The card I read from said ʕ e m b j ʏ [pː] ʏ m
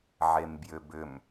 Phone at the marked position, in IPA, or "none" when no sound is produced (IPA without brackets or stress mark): b